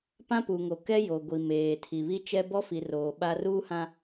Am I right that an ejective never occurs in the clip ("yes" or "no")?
yes